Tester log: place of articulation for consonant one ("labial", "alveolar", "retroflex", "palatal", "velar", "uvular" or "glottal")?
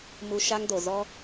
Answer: labial